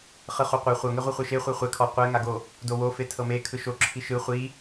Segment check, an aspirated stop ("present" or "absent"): present